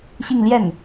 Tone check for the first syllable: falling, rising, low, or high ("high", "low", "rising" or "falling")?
falling